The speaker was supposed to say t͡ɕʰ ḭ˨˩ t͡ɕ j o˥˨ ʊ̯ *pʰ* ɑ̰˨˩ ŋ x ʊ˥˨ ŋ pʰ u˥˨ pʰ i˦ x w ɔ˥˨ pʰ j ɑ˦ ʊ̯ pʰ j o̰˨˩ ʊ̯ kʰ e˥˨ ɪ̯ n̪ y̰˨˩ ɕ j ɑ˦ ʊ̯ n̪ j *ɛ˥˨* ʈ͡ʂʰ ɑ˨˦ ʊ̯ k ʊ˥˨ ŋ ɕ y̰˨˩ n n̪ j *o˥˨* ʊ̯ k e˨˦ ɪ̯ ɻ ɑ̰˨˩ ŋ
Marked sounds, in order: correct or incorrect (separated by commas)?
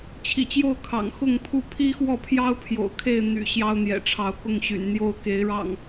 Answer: incorrect, incorrect, correct